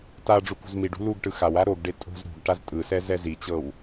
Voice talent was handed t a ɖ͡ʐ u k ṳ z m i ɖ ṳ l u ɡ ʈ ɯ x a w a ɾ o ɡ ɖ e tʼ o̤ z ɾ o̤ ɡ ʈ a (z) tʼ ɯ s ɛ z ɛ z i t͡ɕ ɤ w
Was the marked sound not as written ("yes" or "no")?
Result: no